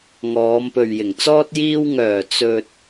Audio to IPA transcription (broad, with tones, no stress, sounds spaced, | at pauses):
ŋ ɔː˨˧ m p ɵ˨ ɥ j ɪ˨˩ ŋ t͡s ɔː˥ t̚ j iː˧ w ŋ œː˨˩ t͡s ɵ˨ t̚